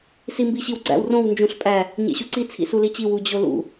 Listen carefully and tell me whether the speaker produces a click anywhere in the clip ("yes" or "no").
yes